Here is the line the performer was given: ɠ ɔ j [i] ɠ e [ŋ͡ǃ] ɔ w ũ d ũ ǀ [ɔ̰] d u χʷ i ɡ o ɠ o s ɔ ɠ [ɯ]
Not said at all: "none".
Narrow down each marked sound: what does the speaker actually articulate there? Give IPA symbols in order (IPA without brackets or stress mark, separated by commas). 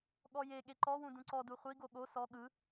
e, ǃ, ɔ, ɯ